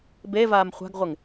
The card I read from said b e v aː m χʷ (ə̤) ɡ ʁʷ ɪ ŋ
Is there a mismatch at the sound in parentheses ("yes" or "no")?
yes